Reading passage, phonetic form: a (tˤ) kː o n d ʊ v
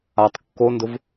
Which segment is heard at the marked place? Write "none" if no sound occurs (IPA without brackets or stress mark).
tˤ